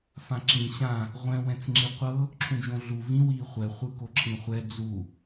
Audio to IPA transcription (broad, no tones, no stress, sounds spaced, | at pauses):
f ã ǁ ĩ ɕ ã | ʁʷ ɛ̃ w ɛ̃ t͡s ŋ͡ǁ i qʷ ɤ | ǁʰ ũ d͡ʒ õ ɮ u v ĩ w i χʷ ɛ χʷ ɯ k o ǁʰ ĩ χʷ ɛ d͡z u